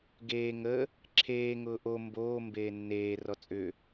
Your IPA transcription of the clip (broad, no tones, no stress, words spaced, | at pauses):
ɡeː ŋə | ǁʰeː ŋʊːʔo mboː mbeːnːeː rɔt͡sʼʏ